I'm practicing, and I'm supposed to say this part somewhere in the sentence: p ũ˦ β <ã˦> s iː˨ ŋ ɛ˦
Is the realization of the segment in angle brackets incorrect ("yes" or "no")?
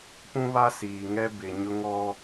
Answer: yes